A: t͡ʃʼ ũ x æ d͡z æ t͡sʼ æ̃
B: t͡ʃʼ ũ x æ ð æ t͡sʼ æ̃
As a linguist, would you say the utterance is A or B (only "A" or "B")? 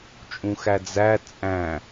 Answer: A